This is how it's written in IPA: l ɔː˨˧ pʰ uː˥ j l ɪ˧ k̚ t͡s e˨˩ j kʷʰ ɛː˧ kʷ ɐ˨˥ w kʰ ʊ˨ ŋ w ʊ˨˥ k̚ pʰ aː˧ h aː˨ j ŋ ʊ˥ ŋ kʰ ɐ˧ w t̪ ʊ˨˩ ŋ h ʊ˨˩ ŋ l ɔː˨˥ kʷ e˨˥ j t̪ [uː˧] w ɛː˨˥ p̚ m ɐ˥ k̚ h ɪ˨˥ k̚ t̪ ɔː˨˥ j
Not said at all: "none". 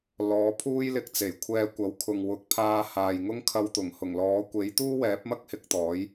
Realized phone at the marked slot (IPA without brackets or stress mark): uː˥